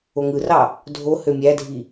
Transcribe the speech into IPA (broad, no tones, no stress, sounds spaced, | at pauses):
o ŋ ɯ r ɑ | dʱ o h ø mʲ æ dʱ i